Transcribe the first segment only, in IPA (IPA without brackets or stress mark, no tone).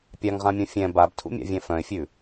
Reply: pʲ